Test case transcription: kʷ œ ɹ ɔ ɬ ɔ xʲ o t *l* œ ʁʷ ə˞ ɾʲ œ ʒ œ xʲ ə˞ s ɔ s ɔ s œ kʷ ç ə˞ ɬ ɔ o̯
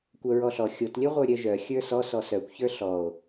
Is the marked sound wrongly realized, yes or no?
yes